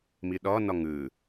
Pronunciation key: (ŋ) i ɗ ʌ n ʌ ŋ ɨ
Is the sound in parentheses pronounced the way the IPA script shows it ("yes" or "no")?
no